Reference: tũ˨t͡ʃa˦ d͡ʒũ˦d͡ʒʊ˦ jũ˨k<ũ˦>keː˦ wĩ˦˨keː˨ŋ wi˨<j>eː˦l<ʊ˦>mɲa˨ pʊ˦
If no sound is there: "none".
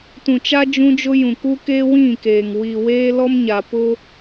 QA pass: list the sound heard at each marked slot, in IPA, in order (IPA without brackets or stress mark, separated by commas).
u˦, w, ɔ˦